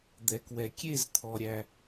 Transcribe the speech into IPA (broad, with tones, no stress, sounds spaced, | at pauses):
d̪ ɛ˨ k w ɛ˨ kʲ e˦˨ z t̪ʰ ɔ˨ ɾʲ æ˦